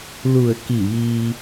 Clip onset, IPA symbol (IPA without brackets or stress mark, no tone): l